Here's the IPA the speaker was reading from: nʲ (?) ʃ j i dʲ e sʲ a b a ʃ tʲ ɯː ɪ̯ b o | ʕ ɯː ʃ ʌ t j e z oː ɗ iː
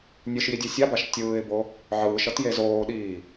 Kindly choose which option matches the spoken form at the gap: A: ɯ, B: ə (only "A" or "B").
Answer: A